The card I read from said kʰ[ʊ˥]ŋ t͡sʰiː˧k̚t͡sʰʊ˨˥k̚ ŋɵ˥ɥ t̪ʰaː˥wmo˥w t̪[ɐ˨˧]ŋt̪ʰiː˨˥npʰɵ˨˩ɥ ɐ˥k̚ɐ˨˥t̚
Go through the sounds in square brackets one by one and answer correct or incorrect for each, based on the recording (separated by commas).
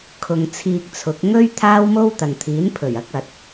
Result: incorrect, incorrect